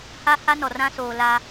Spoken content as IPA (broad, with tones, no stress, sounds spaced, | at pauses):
h a˦ h a˦ n ɔ˨ r ã˦ s oː˨ l a˦